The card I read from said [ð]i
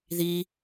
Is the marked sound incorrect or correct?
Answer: correct